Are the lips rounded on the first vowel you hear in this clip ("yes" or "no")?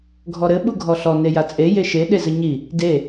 yes